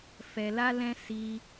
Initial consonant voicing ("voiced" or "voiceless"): voiceless